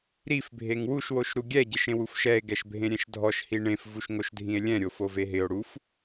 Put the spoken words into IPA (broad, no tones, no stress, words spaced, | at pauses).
ɾifbʱeŋ wuʃwoʃ ɾuɡʲɛ ɟeʃẽwufʃɛe̯ ɡɛʃbʱẽɾʲɛ̃ʃdʱɔʃ hiɳẽfvuʃ ŋoʃdʱĩe̯lʲɛ̃ɾʲo foveɦɪo̯ ɽuf